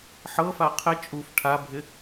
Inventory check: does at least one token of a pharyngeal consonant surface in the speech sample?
yes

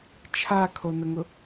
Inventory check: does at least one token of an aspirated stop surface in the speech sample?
yes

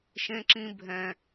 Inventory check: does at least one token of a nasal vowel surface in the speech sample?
yes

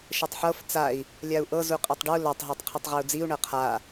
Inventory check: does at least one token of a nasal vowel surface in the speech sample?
no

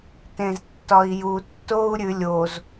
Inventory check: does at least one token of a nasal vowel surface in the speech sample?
yes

